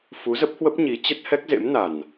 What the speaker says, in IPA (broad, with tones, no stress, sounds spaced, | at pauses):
f u˨˦ z ə˦˥ p̚ h w ə˦˥ p̚ ɲ i˨˦ t͡ɕ ə˦˥ t̚ h ɛ˦˥ k̚ z ḛ˧˥ m n a˨˩ n